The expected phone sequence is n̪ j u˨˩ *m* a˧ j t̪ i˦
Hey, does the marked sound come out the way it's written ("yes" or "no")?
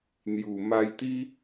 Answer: yes